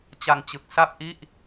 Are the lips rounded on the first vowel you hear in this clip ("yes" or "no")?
no